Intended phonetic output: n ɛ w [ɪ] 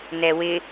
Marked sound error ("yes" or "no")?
no